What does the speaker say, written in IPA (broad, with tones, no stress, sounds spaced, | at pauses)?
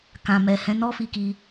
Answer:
k ã˨ m ɛ˨ h ɛ̃˨˦ n ɔ˦ f i˧ k i˧